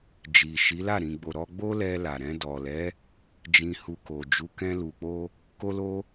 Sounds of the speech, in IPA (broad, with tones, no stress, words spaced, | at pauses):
d͡ʒi˨ʃi˨˦la˦˨ ɾĩ˨ɡ͡bo˨ ɾɔ˧ɡ͡bo˦lɛ˧ la˨ɾɛ̃˧ dɔ˨lɛ˨˦ | d͡ʒĩ˧hu˧ko˨ d͡ʒu˨˦kɛ̃˧lu˨k͡po˧ | ko˦lo˦